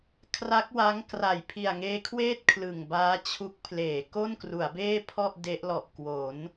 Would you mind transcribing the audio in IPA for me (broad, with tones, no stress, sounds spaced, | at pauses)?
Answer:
kʰ r a˦˥ k̚ w a˦˥ ŋ k r a˨˩ j pʰ i˨˩ a̯ ŋ eː˦˥ kʰ w eː˥˩ t̚ kʰ l ɯ˨˩ ŋ b aː˦˥ t͡ɕʰ u˦˥ k̚ pʰ l eː˩˦ k o˥˩ n k r u˩˦ a̯ b eː˥˩ pʰ ɔ˥˩ ʔ d e˦˥ ʔ l ɔ˨˩ ʔ k w o˩˦ n